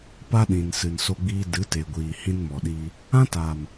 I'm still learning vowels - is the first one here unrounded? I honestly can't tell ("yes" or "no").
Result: yes